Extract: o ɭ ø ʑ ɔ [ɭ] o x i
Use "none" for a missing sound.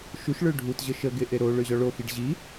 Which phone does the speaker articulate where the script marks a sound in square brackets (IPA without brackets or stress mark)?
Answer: ɭ